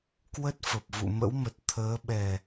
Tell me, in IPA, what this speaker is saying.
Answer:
kwə˦˥t̚ fə˨˩p̚vṵ˧˨mə̰˧˥wmə˨˩t̚ t̪ʰəː˨˦ɓɛ˨˩

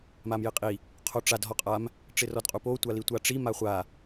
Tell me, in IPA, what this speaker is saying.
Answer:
mamjɪqʼi | qʰoʈ͡ʂad ɦɔqʼam | ʈ͡ʂɪrɔdqʼupo tʷalitʷaʈ͡ʂi maχʷa

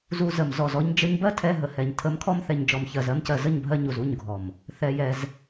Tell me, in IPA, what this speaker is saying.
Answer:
zu˧ zə˨mzɔ˨zɔ˧ɲ d͡ʒə˧ɲbɜ˦tʰɛ˧ ɦə˨hɛ˨ɲ tʰə˨˦mkʰɔ˧mθɛ˨ɲ d͡ʒɔ˨mçɜ˨zɜ˧mcɜ˨ zə˦˨ɲbʱɜ˧ ɲu˨zu˦˨ɲɡʱɔ˨m | θɛ˧jɛ˧z

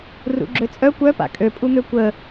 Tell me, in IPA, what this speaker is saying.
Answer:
rṵɡ͡ǁøt͡sʼœ kʷœ pa̰kʼø pʼun̪økʷə

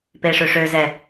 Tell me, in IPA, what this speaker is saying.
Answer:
peʂøʂøzɛ

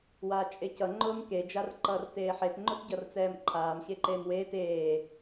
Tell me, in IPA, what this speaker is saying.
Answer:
waːt͡ʃʼecʌ ŋ͡ǃʊːmke d͡ʒarǃʌːrteːħet ŋ͡ǃʊtɟʌrt͡sɛːmǃʰaːm ɕeǃeːmweːt eː

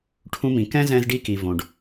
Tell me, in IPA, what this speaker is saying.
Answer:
ʈʰũ˧mĩ˩kɛ̃˥ zɛ̃˧zɖi˧ki˩ võ˩ɖ

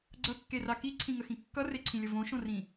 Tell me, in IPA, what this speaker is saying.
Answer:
ɡ͡ǀʌkːera kiǀʰĩŋəxĩ kːʌreǀʰĩlʲə võʃõrĩ

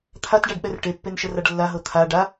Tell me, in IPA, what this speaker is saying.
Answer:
t̪ʰatɖaɖɓɛr ʈepːenʃəraɖ lːaɦɤ t̪ʰa ɖa

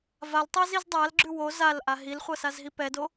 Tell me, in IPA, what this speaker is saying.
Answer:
valtˤɤ zizdˤalɡ͡ǁʉ wo zal ʔaɦilχʷɤ sazɦipɛdo

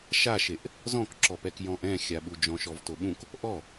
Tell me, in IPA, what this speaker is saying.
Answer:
ʃaʃeʔ | zɔ̃kǁɔpɛk jɔ̃ʔɛ̃xʲaɓu d͡ʒɔ̃ʃɔvtoɓũk | ʔɔ

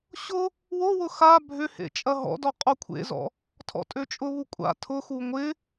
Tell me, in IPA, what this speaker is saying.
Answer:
ɕʊ | wowʊ xa bʱʏ hḛt͡ʃʼɐɦɔ̰dɔ qʼokʷʰḛzɔ̰ | tʰɔ̰tʼøt͡ʃʼʊβu kʷʼa̰ tʰʊxu ŋʷɪ

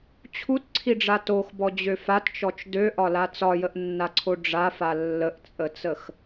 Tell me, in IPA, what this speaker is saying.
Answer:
t͡ɕʰutǀʰiɖ͡ʐa toxbɔd͡ʑø fatt͡ʃɔt͡ʃ døʔɒla t͡sɒjəʔnːaǀʰo ɖ͡ʐafa lːəʔt͡sʼət͡səx

